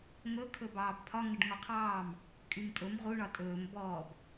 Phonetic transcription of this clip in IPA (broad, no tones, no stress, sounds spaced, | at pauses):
ŋ ɵ kʰ ɵ b ɑː b pʰ ɒ ŋ ə ɖ ŋ ɔ qʰ ɑː m | kʼ y m tʼ ɵ m ʁ u ɳ ɒ tʼ ɵː m b ɔː b